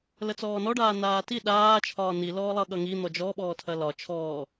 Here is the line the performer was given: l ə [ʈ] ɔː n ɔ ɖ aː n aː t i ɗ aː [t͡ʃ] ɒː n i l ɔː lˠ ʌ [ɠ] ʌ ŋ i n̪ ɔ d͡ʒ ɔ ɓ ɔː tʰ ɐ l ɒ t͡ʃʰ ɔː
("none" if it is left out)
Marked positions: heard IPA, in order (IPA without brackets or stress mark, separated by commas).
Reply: t͡s, t͡ʃʰ, ɠ